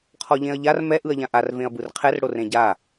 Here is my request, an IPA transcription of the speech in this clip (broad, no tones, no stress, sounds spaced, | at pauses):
qʰ ɔ ʎ ẽ ɐ̯ ʎ a r m ɛ ʔ ɯ ɐ̯ ʎ ã ʔ a r v ẽ ɐ̯ b ɯ r qʰ ɛ r ɽ o r ẽ ɟ a